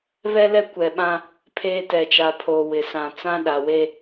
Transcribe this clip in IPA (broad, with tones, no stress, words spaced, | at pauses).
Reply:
βɛ˦lɛ˦ kʷɛ˨ɓã˦ | pʰeː˦tɛ˨ t͡ʃa˨pʰoː˨ wɪ˨ sã˨ t͡sã˦ɗa˨we˦